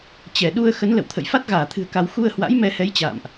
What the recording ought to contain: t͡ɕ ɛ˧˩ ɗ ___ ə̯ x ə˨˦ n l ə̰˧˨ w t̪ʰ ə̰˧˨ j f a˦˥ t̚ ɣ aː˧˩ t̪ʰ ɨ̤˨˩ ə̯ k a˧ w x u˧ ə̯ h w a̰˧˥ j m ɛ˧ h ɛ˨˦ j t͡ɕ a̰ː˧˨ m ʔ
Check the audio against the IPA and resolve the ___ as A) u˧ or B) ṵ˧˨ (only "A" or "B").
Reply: A